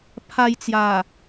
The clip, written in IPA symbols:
pʰ a˧ j t͡s j a˨˩

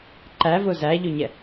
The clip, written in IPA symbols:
ǃ æ v ʊ z æ ʎ ʊ ɲ ɛ

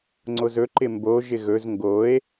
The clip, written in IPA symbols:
ŋ͡ǀ o z ɵ ǃ ɪ m b o ʒ ɪ ɣ ɵ z ŋ ɡ o e̯

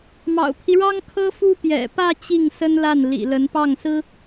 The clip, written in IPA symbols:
m ɑ̰˨˩ ʊ̯ pʰ i˦ ɻ ɑ˥ ŋ kʰ ɤ˥ f u˥ p j ɛ̰˨˩ p ä˥˧ t͡ɕ i˥˩ ŋ s ə˥ n l a˥˩ n l ḭ˨˩ l ə˧˥ n p ɑ˥˩ ŋ s ɹ̩˥

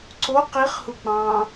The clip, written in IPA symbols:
ǀ o q i χ h u k͡p ɑ̃ː

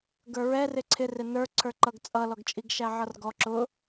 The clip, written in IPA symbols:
ɡ ə˞ ɹ ɛ r ɪ ǀʰ ɪ r ɪ n ə˞ ǀʰ ə˞ ǃ ʌ ɡ t͡sʼ ʌ l ɔ ɡ t͡ʃʼ i ɡ ʃ æ ʕ ʌ r ɡ ɔ ǁ ʊ

